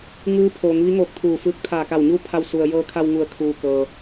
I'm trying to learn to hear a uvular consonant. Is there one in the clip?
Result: no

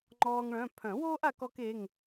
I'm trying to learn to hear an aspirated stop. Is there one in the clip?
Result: yes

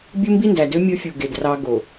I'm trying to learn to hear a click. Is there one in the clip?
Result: no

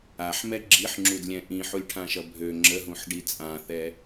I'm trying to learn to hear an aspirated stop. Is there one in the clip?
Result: yes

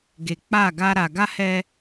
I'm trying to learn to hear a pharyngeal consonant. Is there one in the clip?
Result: no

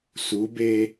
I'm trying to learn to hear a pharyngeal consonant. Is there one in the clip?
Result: no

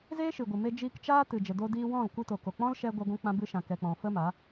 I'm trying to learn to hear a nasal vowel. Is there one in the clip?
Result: yes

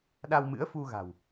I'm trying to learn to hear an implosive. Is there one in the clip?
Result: yes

